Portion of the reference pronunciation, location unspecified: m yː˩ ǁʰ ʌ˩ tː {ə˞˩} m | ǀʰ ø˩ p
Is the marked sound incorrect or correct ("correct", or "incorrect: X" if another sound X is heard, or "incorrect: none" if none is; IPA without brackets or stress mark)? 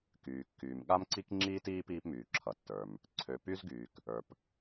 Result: correct